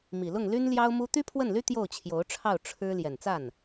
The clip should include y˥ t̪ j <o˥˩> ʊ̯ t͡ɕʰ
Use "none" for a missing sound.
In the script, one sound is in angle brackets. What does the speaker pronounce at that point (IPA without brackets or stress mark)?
o˥˩